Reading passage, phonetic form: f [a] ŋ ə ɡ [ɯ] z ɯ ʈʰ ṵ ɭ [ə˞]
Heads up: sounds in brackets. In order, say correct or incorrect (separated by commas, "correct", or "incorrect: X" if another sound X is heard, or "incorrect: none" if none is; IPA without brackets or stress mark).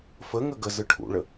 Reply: incorrect: ə, incorrect: ə, incorrect: ə